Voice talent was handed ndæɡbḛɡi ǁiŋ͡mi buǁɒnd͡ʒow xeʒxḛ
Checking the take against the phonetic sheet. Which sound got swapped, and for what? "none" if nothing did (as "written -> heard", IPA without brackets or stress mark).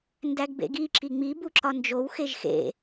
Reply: none